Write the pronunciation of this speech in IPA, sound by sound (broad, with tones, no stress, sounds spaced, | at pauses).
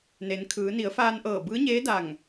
n e˩˧ n kʰ ɯː˩˧ n i˩˧ ə̯ f aː˧ n ʔ ɤː˧˩ b ɯː˧˥ ɲ eː˧˥ d a˧˩ ŋ